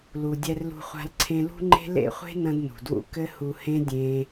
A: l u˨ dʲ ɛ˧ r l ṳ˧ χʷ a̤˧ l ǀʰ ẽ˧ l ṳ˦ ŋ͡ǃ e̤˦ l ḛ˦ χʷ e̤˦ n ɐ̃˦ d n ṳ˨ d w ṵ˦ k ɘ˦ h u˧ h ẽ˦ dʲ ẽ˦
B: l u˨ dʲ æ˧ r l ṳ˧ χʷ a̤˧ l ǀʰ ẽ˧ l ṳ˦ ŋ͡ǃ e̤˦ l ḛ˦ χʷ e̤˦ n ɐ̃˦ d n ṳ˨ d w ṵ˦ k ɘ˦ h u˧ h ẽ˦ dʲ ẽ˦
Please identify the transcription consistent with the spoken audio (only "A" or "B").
A